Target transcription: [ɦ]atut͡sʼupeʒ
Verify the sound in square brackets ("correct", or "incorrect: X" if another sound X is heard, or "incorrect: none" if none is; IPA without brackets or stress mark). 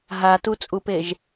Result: correct